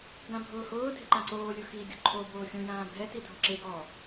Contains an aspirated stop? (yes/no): yes